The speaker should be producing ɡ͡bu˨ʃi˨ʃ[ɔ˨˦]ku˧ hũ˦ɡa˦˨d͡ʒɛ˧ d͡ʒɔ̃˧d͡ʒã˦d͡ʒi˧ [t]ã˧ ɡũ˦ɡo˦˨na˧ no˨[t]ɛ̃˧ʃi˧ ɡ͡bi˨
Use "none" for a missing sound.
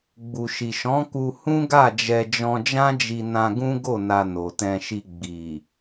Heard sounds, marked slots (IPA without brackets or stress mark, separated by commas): ɔ̃˨˦, n, t